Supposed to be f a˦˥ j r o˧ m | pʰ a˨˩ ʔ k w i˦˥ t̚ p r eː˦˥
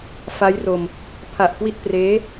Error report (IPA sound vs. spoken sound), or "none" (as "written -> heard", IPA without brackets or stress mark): none